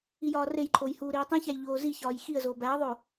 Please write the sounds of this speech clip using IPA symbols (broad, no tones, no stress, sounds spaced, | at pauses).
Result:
i j ɒː r e j ǃʰ o j h uː ɾ iː tˤ ĩ ç æ j ʎ oː z i ç ɒː j x i ə̯ z oː b æ ə̯ ðˤ o